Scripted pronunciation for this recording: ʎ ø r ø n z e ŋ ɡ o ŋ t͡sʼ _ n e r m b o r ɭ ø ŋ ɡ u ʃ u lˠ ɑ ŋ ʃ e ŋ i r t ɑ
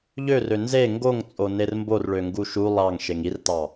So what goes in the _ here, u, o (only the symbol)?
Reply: o